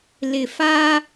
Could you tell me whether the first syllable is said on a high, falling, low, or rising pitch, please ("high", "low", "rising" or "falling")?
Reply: low